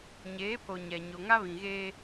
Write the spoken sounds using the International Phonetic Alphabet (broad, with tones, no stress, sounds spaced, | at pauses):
ɲ eː˨˦ pʰ o˨ ɲ ɛ˨ ɲ o˨ ŋ a˦ β ĩ˨ ɣ eː˦